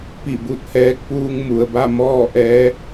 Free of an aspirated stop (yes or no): yes